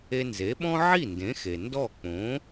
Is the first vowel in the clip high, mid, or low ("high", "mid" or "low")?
mid